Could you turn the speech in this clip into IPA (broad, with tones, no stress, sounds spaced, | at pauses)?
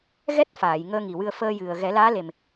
ɣ ɛ˦˥ t̚ f aː˨˩˨ j ŋ əː˧ ŋ i˨˩ w ɨ˧ ə̯ f əː˧ j ɨ˨˩ ə̯ ɣ ɛ˨˩˦ l aː˧˥ l e˨˩ m